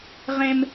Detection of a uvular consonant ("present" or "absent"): present